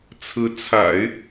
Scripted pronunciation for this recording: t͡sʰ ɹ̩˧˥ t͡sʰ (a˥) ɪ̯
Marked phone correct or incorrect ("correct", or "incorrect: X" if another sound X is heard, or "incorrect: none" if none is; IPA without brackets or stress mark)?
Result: incorrect: a̰˨˩˦